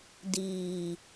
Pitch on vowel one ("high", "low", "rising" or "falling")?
low